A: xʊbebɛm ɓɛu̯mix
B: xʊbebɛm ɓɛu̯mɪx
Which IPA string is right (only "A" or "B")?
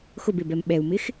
B